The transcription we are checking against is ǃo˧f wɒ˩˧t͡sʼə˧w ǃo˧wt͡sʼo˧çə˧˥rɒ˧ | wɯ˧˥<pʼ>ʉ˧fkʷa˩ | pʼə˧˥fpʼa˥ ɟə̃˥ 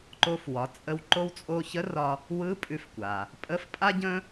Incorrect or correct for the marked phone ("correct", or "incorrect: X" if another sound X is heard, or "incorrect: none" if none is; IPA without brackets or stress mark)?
correct